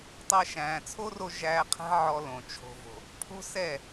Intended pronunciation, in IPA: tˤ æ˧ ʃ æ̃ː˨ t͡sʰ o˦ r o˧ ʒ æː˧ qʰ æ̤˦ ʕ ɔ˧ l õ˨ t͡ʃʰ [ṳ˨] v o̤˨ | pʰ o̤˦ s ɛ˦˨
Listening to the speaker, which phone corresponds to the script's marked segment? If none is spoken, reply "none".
o̤˨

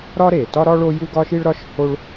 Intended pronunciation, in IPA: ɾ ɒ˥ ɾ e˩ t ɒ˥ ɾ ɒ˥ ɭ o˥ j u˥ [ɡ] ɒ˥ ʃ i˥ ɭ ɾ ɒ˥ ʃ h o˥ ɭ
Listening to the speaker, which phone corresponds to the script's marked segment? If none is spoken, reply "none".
ɡ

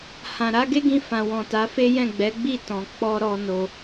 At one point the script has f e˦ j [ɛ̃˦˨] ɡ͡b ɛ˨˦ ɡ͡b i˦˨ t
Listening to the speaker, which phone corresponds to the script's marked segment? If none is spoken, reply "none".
ɛ̃˦˨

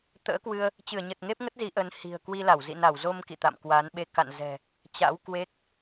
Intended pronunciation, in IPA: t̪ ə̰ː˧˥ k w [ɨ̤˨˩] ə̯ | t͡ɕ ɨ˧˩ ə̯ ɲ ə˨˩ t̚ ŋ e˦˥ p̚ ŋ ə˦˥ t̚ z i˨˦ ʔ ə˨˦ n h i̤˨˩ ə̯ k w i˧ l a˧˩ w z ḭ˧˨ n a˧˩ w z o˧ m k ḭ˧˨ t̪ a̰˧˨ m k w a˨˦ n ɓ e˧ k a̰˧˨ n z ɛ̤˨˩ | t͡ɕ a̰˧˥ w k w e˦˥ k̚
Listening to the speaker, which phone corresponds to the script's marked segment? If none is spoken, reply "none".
ɨ˧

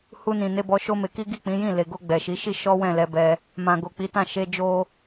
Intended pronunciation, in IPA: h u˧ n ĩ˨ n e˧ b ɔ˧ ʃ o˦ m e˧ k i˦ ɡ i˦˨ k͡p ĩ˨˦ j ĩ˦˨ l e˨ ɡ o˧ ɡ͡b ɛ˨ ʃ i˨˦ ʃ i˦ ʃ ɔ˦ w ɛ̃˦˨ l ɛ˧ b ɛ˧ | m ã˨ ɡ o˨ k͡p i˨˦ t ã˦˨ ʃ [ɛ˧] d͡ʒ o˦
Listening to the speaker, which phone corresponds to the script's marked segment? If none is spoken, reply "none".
e˧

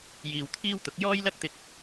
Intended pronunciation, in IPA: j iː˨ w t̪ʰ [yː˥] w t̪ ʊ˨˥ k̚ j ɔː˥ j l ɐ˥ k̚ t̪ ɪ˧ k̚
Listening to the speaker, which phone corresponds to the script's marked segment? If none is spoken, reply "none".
iː˥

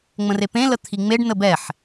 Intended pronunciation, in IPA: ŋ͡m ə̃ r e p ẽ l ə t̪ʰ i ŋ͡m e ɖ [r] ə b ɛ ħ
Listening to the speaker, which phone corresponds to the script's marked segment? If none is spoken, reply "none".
n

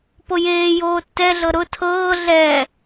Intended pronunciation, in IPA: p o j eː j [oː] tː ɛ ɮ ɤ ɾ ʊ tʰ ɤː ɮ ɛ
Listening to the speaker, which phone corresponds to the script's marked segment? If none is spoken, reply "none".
oː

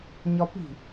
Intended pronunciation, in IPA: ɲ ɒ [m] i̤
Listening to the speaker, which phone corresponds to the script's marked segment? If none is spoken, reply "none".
p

